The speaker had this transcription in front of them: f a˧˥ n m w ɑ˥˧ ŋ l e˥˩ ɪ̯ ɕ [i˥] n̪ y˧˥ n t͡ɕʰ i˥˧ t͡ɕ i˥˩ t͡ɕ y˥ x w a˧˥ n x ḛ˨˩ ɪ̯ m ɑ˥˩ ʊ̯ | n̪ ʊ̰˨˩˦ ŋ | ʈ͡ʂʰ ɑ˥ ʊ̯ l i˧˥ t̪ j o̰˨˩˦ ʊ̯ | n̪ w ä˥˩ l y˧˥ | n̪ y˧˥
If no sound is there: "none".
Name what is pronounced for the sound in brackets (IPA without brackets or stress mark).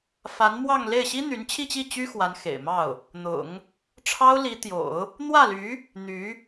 i˥